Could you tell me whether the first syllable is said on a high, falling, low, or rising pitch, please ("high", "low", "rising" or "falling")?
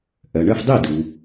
low